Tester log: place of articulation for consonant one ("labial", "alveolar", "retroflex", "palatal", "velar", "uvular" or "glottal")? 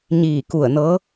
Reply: palatal